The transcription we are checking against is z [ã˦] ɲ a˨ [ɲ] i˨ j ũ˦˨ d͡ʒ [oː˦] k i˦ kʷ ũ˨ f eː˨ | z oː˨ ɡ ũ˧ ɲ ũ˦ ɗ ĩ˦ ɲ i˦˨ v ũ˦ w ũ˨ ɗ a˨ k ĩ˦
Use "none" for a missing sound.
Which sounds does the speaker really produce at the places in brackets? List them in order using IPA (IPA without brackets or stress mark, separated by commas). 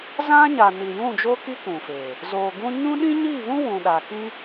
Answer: ã˦, n, oː˦